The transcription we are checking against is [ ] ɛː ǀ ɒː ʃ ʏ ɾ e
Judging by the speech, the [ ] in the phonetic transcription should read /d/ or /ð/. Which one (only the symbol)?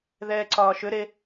ð